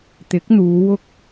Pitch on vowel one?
rising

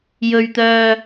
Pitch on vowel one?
low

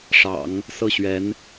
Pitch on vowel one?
low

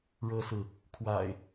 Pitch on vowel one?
high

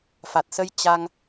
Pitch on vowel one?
low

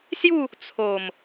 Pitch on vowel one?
falling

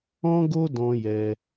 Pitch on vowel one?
high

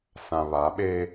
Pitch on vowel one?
low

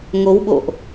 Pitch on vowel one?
rising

